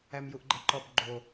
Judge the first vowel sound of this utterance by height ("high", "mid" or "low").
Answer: low